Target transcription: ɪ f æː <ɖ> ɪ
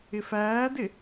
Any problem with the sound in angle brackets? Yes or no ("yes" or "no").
yes